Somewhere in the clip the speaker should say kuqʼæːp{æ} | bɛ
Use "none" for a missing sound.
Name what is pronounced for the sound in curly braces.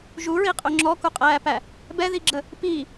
æ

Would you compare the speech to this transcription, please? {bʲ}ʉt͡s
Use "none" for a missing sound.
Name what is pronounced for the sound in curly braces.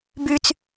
b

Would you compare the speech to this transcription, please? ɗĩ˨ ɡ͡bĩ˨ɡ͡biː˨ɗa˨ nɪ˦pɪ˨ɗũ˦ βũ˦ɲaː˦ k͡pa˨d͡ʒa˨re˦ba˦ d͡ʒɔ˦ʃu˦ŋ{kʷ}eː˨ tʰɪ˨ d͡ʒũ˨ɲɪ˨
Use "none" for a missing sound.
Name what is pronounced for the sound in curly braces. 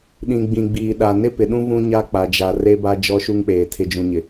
k͡p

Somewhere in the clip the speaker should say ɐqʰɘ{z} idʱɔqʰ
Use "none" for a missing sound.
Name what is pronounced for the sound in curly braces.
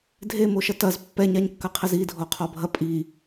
z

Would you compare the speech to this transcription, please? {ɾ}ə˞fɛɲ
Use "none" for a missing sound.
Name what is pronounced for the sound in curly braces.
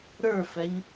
ɾ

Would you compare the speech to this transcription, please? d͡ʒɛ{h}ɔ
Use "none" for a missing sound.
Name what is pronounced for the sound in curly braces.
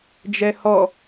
h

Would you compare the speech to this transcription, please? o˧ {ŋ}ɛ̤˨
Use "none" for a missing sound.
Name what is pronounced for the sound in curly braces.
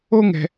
ŋ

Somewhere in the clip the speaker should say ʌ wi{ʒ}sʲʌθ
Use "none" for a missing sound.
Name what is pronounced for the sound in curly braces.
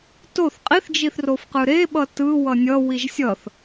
ʒ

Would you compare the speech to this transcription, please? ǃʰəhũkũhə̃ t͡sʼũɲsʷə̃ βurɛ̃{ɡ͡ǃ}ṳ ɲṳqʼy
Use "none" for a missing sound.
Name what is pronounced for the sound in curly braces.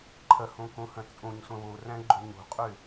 ɡ͡ǃ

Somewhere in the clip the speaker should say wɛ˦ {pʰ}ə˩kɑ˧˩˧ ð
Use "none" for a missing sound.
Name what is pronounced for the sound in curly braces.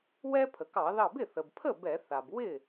pʰ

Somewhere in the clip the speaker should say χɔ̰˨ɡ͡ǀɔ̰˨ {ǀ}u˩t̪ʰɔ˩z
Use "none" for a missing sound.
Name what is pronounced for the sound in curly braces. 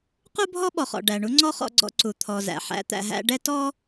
ǀ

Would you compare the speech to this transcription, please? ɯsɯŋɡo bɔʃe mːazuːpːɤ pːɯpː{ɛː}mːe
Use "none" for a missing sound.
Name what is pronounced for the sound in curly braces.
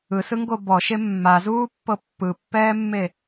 ɛː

